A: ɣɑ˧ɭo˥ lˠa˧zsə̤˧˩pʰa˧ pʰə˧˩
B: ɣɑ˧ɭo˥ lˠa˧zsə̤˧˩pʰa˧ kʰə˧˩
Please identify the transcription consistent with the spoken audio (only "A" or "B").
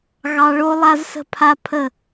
A